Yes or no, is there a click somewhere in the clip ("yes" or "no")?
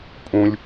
no